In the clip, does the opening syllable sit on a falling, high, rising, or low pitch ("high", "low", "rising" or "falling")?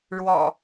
low